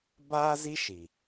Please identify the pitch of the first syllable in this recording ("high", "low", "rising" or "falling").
high